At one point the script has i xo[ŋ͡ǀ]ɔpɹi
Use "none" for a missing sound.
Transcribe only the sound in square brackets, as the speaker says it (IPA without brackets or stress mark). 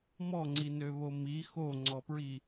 ŋ͡ǀ